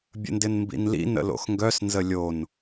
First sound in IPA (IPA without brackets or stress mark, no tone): bʲ